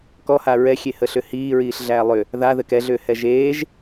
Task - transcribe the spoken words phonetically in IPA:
k ɔ h a ɹ ɛ xʲ e h ə ɬ ʏ h iː ɹ iː ɬ ɮ æː lˠ ʏ | ð a ð ɘ k ɛ ɮ ʏː h ɛ ʒ eː ʒ

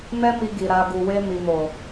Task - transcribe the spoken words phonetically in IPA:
m ɛ˦ m i˧ ɡ i˨ ɾ a˨ ɡ u˨ w e˧ m i˨ m o˨

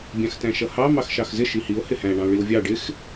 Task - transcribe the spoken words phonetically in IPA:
bʲ ɑ̃ x t æ̃ ʃ ʌ h ɑ m ɑ x ʃ ɑ x z ɪ ʃ i h i o̯ h ɪ h æ̃ ɳ ɑ̃ o̯ ɭ i o̯ vʲ ɑ ɖ ɪ x

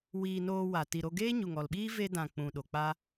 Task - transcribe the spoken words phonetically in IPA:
w iː˧ n oː˧ w a˨ t i˨ ɾ o˧ ɡ eː˦ ɲ u˨ ŋ ɔ˨ l ɓ iː˦ v e˧ d ã˨ k͡p ũ˨ ɗ o˨ k͡p a˦

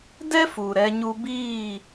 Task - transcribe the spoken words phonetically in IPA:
d ɛ˦ f u˨ ɾ ɛ˧ ɲ u˧ b iː˦˨

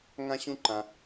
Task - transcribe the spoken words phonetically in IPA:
ŋ ã˥ ɕ ũ˥ ǃ ã˧

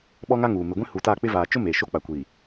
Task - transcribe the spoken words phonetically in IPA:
ɓ ɔ˦ ŋ a˦ ŋ uː˨ m ɪ˨ ɡʷ ĩ˦ h u˨ t a˦˨ k͡p ɪ˦ v aː˨ t͡ʃ ʊ˦ m eː˨ ʃ o˦ k͡p a˨ kʷ iː˨

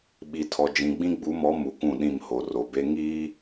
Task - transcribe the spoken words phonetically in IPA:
ɓ i˨ tʰ ɔ˨ d͡ʒ ĩ˨ ɡ͡b ĩ˦ ɡ͡b u˨˦ m ɔ˨˦ m u˨ k ũ˦˨ ɗ ĩ˦˨ m h o˨ r o˨ b e˦ ŋ iː˦

